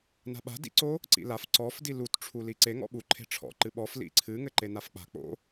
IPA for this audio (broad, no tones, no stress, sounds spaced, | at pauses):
n a̤ ɓ a̤ d ḭ ǀ o | ǀ ḭ l a f ǀ ɔ f d i l u t ʈ͡ʂʰ u l i ǀ e ŋ ɔ̰ ɓ u ǃʰ e̤ ʈ͡ʂʰ ɔ̰ ǃ ɨ ɓ ɔ f l ḭ ǀʰ ɨ ŋ ɘ ǃ e n a f k͡p a̤ k͡p o̰